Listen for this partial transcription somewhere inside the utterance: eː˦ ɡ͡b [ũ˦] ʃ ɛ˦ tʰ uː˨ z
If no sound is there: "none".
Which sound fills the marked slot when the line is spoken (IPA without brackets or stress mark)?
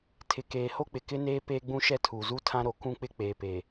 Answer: ũ˦